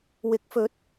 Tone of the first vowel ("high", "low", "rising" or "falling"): rising